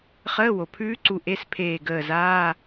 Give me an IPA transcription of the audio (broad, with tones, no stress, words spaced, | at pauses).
χəː˧˥˧wo˩pʰʉː˦˥ǀu˧˩ ʔe˧˥˧spʰeː˧˩ɡəː˧˩zaː˧˥˧